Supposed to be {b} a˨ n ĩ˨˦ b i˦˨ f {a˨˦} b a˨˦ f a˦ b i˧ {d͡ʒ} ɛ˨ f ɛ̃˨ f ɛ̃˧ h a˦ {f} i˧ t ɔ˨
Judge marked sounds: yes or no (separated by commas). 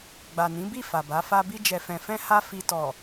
no, no, yes, yes